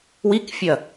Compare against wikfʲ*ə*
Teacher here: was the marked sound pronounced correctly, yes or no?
no